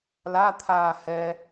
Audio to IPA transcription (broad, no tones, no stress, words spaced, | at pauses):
lat̪ʰaː hɛ